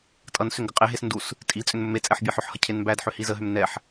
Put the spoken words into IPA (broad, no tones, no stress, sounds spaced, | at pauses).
tʼ ʌ n s ʏ ŋ ɡ ə qʼ e ɦ e s n d u s | tʼ i t͡sʼ ʏ n m ɵ m e t͡sʼ ɛ ħ bʲ e ħ ʏ ħ h ʌ cʰ e n m b æ d ħ ʏ h i z ə ɦ ʏ m n ɛ ħ